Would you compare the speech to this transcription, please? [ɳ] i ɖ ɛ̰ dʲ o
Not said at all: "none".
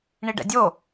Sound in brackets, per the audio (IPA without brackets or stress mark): ɳ